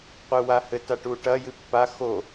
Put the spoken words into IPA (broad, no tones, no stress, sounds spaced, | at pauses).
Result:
qʷ ɨ w a h ɘ t a ʈ u ʈ ɐ j ɨ pː a x o